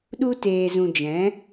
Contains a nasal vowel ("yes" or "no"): yes